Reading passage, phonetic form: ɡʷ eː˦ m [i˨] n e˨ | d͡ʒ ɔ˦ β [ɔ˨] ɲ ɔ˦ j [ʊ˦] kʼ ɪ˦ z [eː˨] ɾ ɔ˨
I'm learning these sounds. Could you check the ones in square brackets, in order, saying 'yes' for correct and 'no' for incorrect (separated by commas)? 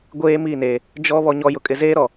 no, no, yes, no